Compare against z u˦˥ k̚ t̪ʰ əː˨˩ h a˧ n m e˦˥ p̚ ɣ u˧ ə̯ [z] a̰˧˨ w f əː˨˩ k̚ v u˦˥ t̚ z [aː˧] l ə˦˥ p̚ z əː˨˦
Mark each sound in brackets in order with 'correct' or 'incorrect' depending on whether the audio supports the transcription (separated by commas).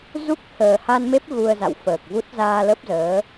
correct, correct